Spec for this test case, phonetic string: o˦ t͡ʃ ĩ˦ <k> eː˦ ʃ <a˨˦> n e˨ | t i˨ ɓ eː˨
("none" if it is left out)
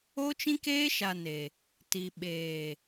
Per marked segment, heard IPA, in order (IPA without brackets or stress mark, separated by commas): k, a˨